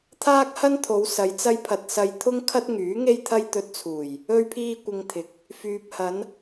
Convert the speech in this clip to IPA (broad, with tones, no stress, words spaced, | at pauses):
t̪ʰaː˥k̚hɐ˥nt̪ʰo˨˧w sɐ˨˧jt͡sɐ˥jpʰɐ˧t̚sɐ˧j t̪ʰʊ˥ŋkʰɐ˥t̚ŋyː˨˥ŋe˥j t̪ʰɐ˥jt̪ɵ˧t̚t͡sʰuː˨˩j | ɵ˥ɥpʰiː˥kʷɪ˧ŋt̪ʰɪ˨k̚ | fyː˨p̚hɐ˨˧n